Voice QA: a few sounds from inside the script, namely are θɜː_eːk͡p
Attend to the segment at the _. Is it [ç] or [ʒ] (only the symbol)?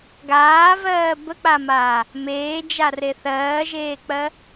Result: ʒ